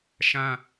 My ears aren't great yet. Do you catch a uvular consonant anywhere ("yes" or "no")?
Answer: no